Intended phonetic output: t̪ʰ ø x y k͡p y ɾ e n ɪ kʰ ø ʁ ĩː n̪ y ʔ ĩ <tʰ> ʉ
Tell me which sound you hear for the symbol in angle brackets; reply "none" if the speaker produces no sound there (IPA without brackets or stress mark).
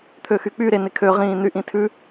tʰ